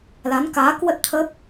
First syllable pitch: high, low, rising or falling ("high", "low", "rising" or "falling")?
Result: rising